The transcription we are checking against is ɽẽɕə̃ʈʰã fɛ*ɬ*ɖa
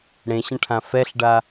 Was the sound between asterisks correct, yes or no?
yes